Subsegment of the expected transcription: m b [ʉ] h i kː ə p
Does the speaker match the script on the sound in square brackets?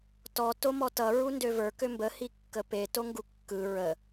no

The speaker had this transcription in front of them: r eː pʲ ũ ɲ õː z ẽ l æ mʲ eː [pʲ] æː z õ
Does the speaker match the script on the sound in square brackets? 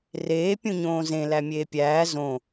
yes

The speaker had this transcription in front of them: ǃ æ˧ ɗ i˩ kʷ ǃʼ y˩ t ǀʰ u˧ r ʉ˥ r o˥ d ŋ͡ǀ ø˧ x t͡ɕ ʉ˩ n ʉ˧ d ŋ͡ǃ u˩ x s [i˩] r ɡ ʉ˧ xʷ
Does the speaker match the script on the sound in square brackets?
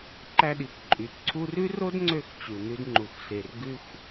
no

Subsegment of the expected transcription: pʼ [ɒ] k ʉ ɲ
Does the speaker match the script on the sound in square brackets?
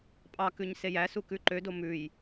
no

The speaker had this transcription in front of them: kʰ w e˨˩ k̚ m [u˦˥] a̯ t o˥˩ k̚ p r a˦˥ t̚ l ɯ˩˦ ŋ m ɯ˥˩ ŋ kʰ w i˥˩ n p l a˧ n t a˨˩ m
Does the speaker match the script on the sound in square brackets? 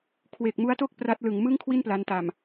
yes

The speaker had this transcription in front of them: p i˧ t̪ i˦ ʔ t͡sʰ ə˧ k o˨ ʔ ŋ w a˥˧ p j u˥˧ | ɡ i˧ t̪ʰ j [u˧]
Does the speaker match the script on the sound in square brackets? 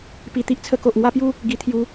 yes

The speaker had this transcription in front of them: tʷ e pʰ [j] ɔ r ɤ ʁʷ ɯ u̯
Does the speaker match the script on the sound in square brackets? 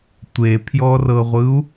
yes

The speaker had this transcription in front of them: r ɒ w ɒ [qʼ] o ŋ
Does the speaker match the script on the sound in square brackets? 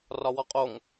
yes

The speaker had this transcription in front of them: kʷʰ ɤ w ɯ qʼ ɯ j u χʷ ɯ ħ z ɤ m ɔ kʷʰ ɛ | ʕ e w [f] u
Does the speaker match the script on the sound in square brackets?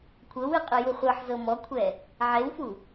yes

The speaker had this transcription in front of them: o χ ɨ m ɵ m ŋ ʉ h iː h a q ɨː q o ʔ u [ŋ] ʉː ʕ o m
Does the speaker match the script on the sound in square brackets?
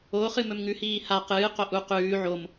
no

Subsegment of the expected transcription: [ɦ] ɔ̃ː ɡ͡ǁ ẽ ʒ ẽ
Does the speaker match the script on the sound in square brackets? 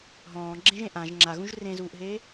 yes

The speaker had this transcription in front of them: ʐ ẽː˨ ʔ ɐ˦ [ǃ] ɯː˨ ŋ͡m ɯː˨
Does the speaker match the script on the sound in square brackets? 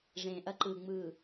yes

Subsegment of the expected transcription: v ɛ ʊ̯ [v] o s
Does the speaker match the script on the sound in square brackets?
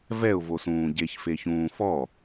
yes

